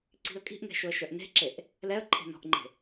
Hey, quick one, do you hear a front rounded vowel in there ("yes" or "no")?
yes